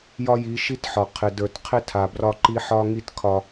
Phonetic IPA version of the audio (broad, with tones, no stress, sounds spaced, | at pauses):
j ɒ˦ j i˨˦ ʃ i˦ t ħ ɒ˨ qʰ ɪ˨ d ə˞˨ t qʰ ɪ˦ tʰ a˨ b r ɒ˦ ǃ i˦ ħ ɒ˦ ŋ i˦ t kʰ ɒ˦